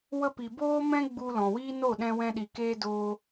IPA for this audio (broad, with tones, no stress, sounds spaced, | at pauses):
w ə˧ p i˨ b oː˧ m ɛ̃˧ ɡ͡b u˧ l ɔ̃˨ w iː˦ n o˦˨ ɗ ɛ̃˧ w ɛ̃˧ ɗ i˨ k eː˧ d oː˧